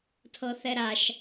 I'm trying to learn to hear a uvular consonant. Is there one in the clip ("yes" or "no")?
no